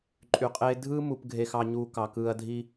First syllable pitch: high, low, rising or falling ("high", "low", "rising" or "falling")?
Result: low